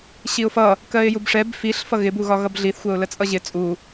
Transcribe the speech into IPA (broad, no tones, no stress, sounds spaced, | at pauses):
ɕ i ʊ̯ f ʌ | k ɜ ɪ̯ j u b ʂ ɛ b f i ɬ f ʌ ɣ ɪ b u ɣ ɒ ɣ ʌ b ɮ i θ xʷ ɜ ʊ̯ l ə t͡sʼ ʌ ʑ ɪ t͡sʼ u